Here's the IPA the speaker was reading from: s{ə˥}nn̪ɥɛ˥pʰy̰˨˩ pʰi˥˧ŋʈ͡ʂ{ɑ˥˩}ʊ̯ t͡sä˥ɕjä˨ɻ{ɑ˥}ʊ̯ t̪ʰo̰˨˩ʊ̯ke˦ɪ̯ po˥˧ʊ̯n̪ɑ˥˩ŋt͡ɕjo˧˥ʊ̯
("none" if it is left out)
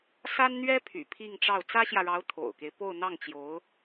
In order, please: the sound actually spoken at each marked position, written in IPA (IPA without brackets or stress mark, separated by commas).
a˥, ɑ˥˩, ɑ˧˥